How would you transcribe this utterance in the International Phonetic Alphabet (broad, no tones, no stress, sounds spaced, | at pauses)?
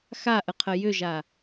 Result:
x a ʔ ə qʰ ə j ʏ ʒ a